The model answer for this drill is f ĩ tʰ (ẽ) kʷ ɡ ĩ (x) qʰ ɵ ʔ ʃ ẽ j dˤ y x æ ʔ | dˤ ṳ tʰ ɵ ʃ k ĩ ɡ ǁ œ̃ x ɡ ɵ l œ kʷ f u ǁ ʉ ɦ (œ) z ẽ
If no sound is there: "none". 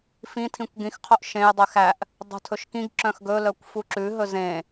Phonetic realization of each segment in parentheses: ĩ, x, ɵ

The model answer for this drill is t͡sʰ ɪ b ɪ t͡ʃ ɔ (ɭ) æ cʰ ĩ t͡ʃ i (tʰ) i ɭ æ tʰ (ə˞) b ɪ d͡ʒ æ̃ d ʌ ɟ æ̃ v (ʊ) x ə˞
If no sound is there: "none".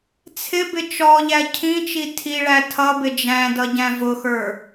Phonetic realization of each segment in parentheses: ʎ, tʰ, ʌ, ʊ

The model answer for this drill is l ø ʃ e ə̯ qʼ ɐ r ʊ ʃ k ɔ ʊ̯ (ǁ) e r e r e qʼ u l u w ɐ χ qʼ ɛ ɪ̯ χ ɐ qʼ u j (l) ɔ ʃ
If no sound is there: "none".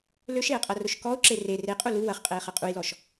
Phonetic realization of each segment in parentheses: ǁ, l

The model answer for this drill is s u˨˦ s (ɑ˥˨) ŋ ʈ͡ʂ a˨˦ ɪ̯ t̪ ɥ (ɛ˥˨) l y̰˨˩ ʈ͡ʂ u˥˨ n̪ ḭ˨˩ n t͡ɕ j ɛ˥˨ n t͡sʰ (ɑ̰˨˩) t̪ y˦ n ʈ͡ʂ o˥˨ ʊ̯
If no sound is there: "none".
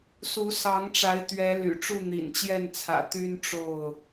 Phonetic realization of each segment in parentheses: ɑ˨˦, ɛ˨˦, ä̰˨˩

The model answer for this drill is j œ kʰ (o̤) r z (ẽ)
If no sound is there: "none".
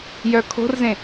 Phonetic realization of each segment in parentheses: o̤, ẽ

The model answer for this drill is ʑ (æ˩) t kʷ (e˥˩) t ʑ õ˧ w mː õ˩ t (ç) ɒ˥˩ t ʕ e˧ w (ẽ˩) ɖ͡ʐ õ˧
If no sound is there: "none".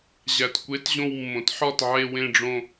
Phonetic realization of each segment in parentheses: æ˩, e˩˥, ħ, ẽ˧

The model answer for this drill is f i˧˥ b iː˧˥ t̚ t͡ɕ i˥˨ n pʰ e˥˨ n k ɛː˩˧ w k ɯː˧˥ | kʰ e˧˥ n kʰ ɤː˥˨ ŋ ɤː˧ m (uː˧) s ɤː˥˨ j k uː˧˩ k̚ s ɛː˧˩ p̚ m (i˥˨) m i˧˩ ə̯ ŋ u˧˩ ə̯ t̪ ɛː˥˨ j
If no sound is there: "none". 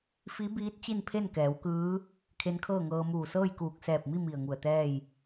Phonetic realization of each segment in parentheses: uː˧˩, i˥˨

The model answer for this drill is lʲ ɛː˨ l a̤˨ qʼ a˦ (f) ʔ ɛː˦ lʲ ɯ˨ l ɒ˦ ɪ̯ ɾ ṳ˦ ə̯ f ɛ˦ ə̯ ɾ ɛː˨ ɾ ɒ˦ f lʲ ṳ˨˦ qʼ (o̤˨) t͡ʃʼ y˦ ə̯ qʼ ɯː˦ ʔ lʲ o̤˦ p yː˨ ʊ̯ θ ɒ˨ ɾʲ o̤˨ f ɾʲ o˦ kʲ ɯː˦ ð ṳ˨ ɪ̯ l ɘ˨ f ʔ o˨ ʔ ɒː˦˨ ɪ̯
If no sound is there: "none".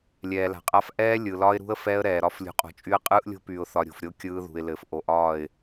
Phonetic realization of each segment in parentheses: f, o̤˨

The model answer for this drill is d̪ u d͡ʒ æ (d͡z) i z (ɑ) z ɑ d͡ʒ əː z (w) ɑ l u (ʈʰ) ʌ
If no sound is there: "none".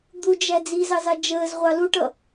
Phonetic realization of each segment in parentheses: d͡z, ɑ, ʁʷ, ʈ

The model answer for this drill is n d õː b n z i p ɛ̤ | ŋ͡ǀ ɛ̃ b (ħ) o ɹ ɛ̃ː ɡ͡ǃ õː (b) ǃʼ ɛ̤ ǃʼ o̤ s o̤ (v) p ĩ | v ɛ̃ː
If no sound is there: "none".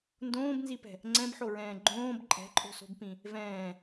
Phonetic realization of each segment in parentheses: ħ, b, b

